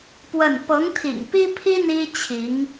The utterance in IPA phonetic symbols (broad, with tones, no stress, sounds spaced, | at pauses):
p w ə˥˩ n p ɤ˧˥ ŋ t̪ʰ ḭ˨˩ ŋ p i˥ pʰ i˥ n̪ i˥ t͡ɕʰ i˧˥ ŋ